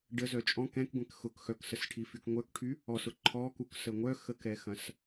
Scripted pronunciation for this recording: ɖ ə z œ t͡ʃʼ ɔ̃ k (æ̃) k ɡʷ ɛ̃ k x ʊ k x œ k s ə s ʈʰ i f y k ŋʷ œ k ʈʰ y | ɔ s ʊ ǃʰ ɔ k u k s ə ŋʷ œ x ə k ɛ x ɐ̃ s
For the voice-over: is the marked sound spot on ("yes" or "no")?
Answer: no